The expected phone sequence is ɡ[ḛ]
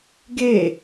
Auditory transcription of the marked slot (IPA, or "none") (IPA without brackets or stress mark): e